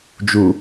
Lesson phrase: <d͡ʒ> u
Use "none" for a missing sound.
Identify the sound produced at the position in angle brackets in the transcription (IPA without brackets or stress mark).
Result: d͡ʒ